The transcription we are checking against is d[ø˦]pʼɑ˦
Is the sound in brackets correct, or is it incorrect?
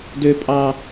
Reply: correct